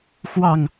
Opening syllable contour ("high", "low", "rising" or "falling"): falling